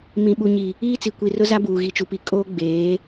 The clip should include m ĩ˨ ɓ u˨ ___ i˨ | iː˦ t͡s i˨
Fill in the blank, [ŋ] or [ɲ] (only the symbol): ɲ